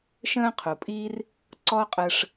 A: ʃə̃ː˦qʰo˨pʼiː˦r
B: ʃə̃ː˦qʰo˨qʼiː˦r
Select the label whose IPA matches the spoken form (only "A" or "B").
A